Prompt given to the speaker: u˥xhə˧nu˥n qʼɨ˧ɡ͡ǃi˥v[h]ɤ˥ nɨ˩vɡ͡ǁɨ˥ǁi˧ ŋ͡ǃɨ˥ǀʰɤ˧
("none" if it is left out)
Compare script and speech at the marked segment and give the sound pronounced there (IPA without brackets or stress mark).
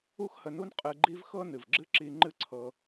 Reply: x